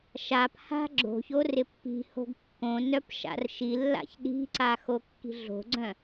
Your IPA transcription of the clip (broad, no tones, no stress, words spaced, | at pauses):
ʃapha̤ ɡ͡ǁo̤çor ɪpːi̤ho̤ɡ kːõ nœpʃa̰rʃilːa̰ç ɗi̤ǀa xokːi̤ɮo̤ɡ͡ǀœ̃